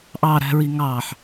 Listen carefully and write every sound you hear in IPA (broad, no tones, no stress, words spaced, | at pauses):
ʔɑ ɾæ̤ɹiŋɑħ